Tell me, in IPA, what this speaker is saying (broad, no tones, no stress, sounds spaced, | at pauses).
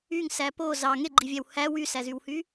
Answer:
y ŋ s æ p o z ɑ ŋ e ɡ͡ǃ i vʲ æ w h æ w y s æ z y w h y